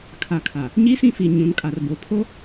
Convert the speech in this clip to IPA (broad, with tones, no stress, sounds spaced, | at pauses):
kʰ a˨ kʰ a˨ | ɲ i˦ s ĩ˦˨ f i˨ ɲ ũ˨˦ n kʼ a˨ r b o˨ pʰ o˦